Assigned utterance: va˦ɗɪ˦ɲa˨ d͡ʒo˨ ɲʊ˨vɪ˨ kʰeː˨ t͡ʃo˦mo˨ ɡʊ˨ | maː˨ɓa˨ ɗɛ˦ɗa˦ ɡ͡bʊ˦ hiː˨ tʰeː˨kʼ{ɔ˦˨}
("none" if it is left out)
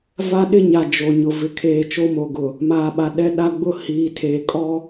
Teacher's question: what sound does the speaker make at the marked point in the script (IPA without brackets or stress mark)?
ɔ˦